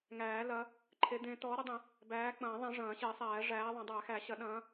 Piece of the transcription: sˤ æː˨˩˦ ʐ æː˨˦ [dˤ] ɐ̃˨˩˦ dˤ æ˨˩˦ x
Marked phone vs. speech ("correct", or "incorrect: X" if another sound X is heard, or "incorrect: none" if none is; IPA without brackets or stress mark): incorrect: ðˤ